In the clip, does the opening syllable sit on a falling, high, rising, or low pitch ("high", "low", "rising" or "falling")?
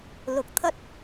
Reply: low